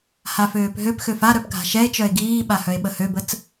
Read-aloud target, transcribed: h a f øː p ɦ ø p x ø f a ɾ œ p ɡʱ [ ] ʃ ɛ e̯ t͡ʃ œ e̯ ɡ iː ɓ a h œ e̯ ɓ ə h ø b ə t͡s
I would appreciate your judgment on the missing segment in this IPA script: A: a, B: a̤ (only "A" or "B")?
B